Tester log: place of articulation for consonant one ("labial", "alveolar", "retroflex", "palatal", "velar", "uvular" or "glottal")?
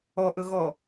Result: glottal